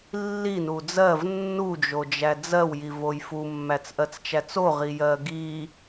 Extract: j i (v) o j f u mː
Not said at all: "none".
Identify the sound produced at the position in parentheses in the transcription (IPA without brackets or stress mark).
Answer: v